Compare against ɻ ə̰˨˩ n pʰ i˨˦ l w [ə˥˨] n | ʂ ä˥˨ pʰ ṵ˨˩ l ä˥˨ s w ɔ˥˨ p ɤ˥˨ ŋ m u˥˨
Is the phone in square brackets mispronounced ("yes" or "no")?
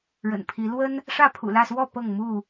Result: yes